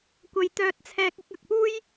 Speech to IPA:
kʷ ɐ˧ j t̪ œː˧ t̚ t͡sʰ ɛː˧ k̚ ɪ˨˥ k̚ ɐ˨ k̚ p uː˥ j

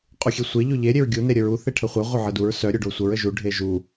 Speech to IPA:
qʼ u xʲ e sʷ e ʎ o ʎ e ɾʲ e ɹ ɡʲ u n e ɾʲ ə ɹ u θ e ʈʰ ə χʷ e ʁʷ œ ʕ ə d u ɹ s œ ɾʲ o ɖ o sʷ ə ɹ ə ʒ u ɖʱ e ʒ u

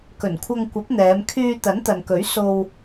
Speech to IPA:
k ɵ˨˩ n kʷʰ ɐ˧ ŋ kʷ ɐ˨˥ p̚ n̪ ɛː˨˧ m kʰ yː˧ t̪ ɐ˨˥ n t̪ ɐ˨ n k ɵ˨˥ ɥ s o˧ w

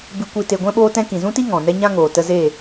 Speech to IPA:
b ɨ˧ kʷ i˧ t e˧ ɡʷ ɛ̃˦ ɓ oː˦ t ɛ̃˦ k ĩ˨ z ũ˦ t i˦ ŋ ɔ̃˨ n ɛ˦ ɲ ã˦ ŋ oː˨ t ə˧ z e˦˨

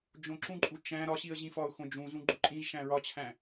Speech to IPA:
d͡ʒ õ ǁ ũ ǃʼ u t͡ʃ æ̃ ɾ ɒ ɕ i ə̯ ʑ ĩ f ɒ ʊ̯ x õ d͡ʒ ũ z ũ ɡ͡ǃ u ǃʼ ĩ ʒ ʃ æ̃ ɹ ɒ t͡ɕʰ æ̃

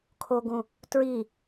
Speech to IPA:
kʰ o ɡ ũ | t ɹ i

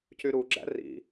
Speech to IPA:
c y ɾ u ɡ͡ǁ æ̰ r ḭ

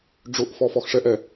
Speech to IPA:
ɖ͡ʐ ʊ ʔ f ɔ f ɔ x ʂ ɛ ʔ ɛ

